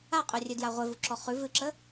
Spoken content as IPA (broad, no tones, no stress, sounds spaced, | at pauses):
a qʼ œ rʲ ɨ d j a ʁʷ e v u ǁ ɔ χ ʉ v ɨ ǁ ə